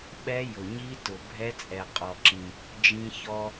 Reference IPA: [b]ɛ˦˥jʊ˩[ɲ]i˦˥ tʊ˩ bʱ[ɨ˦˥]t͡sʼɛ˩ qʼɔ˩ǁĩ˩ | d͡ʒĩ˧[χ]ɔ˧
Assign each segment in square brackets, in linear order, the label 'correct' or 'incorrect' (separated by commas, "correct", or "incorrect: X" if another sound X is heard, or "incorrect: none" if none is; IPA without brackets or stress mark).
incorrect: ɓ, correct, incorrect: ɛ˦˥, incorrect: ç